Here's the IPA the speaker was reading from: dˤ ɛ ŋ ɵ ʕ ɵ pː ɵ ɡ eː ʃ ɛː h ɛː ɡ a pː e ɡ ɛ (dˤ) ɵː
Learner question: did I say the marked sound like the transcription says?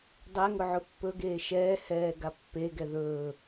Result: no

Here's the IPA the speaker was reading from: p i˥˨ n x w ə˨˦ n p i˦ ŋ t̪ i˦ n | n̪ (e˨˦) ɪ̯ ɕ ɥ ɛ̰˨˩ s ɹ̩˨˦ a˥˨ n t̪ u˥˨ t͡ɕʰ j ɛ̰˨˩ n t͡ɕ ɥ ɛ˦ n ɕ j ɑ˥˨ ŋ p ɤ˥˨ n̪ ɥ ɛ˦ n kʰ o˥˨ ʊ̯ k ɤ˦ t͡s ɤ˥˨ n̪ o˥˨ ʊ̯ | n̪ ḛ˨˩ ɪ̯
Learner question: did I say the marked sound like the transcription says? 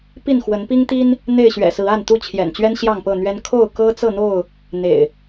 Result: no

